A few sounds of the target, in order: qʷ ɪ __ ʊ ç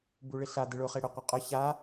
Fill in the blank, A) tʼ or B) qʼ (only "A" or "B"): B